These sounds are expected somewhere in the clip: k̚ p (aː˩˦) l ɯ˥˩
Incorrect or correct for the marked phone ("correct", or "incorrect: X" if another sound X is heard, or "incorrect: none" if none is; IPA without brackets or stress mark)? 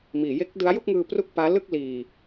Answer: incorrect: aː˦˥